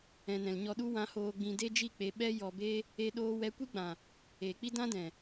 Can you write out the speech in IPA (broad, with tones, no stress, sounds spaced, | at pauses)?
ɛ̃˨ n ɛ̃˨ l ɲ ɔ˧ ɗ u˦ w ã˧ h oː˧ ɡ͡b ĩ˧ d e˦ d͡ʒ i˦˨ k͡p e˧ ɓ ɛ˦ j ɔ˧ b e˦ | e˦ ɗ oː˦ w ɛ˦ kʷ i˦ ɡ͡b ã˨ | eː˨ k͡p i˦ d ã˦ d ɛ̃˨